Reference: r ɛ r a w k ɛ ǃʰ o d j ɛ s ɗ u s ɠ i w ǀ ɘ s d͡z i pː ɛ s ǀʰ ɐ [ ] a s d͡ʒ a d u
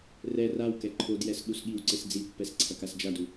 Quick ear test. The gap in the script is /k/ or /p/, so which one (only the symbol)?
k